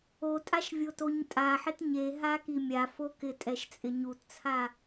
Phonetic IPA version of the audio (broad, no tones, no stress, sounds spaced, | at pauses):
o tʼ a ʃ vʲ o t o ɲ tʼ a ħ ɪ t ɲ e ɦ a k i mʲ a f o k ɪ tʼ ɛ ʃ t͡sʼ ɪ ɲ u t t͡sʰ a